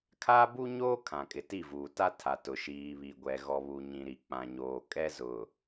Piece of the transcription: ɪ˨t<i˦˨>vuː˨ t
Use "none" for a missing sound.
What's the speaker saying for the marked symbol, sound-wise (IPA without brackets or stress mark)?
i˦˨